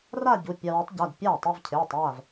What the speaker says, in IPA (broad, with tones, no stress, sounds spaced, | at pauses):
r a˥˧ ɟ u˩˧˩ pʲ a˧ w e˨˥ tˤ ɟ a˩˧˩ d pʲ aː˥˩ tˤ e˥˧ v cʰ eː˩˧˩ tˤ aː˥˩ v